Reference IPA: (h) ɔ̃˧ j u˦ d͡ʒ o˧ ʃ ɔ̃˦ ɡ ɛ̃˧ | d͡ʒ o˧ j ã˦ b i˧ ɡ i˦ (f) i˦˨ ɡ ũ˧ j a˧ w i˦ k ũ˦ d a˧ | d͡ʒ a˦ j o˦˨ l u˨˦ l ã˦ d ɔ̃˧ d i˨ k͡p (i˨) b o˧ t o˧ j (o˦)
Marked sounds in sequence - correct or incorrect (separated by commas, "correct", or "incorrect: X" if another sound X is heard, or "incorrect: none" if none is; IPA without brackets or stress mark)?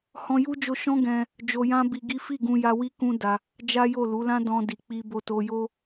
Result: correct, correct, incorrect: i˧, correct